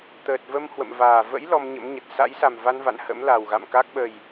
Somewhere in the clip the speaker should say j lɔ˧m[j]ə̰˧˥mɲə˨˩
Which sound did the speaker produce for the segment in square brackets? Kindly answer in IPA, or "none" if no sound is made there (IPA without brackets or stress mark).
ɲ